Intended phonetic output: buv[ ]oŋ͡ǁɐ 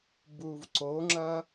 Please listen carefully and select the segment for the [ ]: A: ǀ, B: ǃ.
A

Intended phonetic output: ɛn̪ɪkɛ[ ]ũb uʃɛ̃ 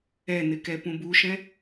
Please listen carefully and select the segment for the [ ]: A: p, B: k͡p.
A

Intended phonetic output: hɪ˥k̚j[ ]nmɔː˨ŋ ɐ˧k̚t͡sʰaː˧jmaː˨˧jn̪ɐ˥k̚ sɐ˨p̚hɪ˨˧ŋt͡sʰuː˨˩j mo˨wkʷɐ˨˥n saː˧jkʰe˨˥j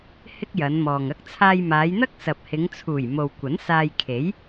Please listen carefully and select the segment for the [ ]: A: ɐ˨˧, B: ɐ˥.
A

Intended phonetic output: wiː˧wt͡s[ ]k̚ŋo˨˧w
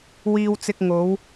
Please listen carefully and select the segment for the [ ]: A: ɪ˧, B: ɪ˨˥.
A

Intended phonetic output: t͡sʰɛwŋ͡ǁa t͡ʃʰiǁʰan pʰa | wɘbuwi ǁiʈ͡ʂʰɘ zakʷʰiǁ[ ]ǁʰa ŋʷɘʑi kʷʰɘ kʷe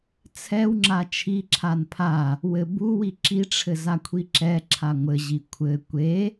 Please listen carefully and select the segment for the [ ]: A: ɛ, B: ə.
A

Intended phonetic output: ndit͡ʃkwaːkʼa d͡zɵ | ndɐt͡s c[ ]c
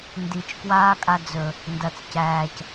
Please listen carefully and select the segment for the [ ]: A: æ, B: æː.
B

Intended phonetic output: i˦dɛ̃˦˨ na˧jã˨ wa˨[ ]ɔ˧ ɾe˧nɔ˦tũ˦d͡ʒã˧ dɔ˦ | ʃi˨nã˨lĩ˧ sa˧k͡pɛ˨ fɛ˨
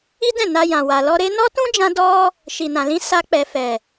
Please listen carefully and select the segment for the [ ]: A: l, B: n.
A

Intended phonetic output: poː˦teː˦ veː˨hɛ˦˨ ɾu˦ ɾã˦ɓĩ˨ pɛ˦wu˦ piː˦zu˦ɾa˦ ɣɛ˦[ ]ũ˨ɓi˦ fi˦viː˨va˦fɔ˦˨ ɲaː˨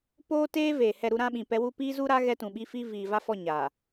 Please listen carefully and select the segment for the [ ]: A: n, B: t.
B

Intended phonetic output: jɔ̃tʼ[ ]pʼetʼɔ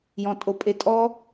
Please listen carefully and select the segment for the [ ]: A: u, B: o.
B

